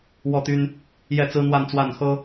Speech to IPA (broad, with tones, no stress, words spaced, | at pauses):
wɔ˥˨t̪y˦n | jɛ˥˨t͡sɹ̩˦n̪wa˥˨nt͡swa˥˨n xɤ˦